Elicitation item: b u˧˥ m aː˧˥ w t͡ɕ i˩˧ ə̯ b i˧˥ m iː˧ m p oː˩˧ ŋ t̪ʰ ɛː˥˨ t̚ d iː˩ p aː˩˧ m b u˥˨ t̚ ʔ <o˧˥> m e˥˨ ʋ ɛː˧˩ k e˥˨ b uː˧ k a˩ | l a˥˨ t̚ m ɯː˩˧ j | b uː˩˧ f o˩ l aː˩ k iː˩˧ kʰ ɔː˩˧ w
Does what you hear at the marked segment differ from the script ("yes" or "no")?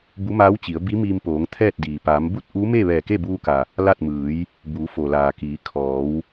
yes